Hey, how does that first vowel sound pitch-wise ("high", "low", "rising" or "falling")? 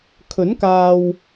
rising